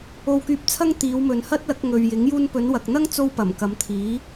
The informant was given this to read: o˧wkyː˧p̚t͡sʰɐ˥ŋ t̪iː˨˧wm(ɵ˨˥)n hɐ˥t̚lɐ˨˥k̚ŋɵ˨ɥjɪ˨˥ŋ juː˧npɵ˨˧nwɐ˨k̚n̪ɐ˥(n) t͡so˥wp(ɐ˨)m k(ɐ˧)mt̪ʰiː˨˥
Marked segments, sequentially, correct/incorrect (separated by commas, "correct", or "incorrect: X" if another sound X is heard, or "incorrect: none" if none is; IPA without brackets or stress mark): incorrect: ɵ˨, incorrect: ŋ, incorrect: ɐ˨˩, incorrect: ɐ˨˧